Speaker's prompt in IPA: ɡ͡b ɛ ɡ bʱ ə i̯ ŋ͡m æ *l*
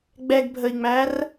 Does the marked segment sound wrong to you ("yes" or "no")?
yes